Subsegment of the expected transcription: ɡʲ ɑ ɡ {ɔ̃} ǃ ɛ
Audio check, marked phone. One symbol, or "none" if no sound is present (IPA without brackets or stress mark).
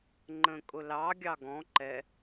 ɔ̃